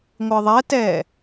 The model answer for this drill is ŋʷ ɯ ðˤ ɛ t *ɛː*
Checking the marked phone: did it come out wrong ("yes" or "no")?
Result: no